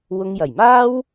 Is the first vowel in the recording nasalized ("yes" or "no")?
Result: no